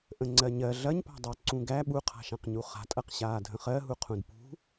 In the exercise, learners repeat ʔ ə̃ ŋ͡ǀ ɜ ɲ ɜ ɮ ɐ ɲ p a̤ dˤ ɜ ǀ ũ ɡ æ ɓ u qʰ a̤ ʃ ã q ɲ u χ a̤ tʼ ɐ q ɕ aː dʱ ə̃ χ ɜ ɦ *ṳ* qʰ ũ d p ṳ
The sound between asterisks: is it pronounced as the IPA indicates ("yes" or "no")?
no